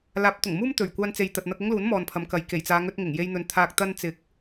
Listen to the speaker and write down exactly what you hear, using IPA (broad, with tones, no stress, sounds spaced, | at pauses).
l aː˨˥ p̚ t̪ ʊ˨˩ ŋ m uː˥ m t̪ ɵ˨˩ ɥ kʷ aː˧ n t͡s e˨ j t̪ ɐ˨ t̚ n̪ ɐ˧ k̚ ʊ˥ ŋ l uː˨˥ n m ɔː˨ n pʰ ɐ˨˧ m k ɐ˨ j k e˨˩ j t͡s aː˨˧ ŋ ɵ˧ t̚ ŋ ɪ˨˩ ŋ j e˧ j n̪ ɵ˨ n t̪ʰ aː˨ k̚ t̪ ɐ˧ n t͡s ɪ˨˥ k̚